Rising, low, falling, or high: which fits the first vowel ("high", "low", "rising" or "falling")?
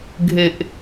low